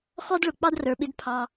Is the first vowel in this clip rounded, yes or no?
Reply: yes